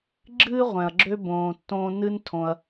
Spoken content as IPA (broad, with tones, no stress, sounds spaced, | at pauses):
ɡ͡ǁ ɨː˥ ʁʷ ɛ̃˩ ɐ̯ ɡ͡ǁ ø˦ b õː˨ tː õː˦ n ɨ˦ n tʰ õ˨ ɐ̯